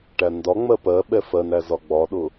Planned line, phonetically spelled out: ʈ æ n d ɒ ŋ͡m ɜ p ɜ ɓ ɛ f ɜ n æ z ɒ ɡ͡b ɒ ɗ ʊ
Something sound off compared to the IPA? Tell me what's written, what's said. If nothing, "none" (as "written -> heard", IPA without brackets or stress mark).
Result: none